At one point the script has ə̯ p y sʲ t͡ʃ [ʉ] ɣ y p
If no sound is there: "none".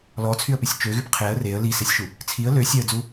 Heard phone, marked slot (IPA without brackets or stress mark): ø